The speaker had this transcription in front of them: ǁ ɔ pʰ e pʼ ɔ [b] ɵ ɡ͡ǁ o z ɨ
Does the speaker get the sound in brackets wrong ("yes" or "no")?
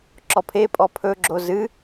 yes